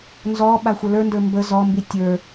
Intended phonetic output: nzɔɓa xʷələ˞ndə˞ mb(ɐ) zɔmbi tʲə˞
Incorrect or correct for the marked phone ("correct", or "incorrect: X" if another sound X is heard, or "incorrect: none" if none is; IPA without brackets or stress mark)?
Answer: incorrect: ə